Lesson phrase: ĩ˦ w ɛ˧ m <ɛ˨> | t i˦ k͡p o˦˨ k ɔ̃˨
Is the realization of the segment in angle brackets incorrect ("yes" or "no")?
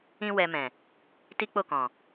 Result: yes